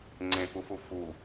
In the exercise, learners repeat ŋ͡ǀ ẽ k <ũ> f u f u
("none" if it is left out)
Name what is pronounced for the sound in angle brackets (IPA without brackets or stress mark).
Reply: u